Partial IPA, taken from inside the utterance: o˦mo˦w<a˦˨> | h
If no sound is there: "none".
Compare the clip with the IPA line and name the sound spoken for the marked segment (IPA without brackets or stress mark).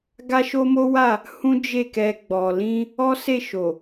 a˦˨